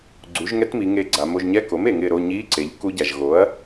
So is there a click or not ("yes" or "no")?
yes